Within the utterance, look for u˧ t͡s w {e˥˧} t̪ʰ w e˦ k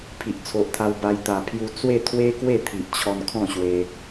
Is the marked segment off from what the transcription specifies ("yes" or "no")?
no